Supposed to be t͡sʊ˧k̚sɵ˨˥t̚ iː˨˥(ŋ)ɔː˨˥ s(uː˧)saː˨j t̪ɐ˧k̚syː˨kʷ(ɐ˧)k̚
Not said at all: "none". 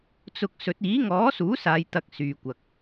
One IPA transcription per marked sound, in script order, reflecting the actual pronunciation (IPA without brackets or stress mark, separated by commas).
ŋ, uː˨˥, ɐ˨